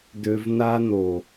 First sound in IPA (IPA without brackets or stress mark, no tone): d